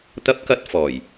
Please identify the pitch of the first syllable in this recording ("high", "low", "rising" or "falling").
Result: high